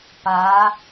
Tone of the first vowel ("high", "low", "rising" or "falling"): rising